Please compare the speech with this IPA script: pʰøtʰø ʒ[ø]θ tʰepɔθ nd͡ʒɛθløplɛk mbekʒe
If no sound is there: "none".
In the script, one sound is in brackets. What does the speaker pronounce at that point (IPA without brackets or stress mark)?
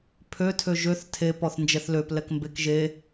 ø